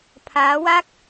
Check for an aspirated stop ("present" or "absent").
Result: present